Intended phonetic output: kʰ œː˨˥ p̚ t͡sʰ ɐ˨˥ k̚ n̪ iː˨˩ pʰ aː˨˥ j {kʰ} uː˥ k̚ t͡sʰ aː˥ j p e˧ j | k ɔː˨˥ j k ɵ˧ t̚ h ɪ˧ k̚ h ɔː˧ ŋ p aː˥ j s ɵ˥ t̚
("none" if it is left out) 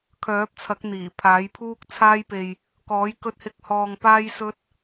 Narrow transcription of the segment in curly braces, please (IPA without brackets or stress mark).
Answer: pʰ